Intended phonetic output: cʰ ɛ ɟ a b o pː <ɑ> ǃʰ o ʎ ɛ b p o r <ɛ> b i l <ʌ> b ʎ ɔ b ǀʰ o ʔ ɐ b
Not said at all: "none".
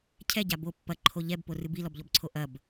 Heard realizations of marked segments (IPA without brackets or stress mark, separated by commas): ɐ, ɨ, ɔ